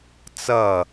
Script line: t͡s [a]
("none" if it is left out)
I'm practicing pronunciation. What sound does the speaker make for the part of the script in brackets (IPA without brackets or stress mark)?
ʌ